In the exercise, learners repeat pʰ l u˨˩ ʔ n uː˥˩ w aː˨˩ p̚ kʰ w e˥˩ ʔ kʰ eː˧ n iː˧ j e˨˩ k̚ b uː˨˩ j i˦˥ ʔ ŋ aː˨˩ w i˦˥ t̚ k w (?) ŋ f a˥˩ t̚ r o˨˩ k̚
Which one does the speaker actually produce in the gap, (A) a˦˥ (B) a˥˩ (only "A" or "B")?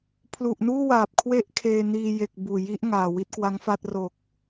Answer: A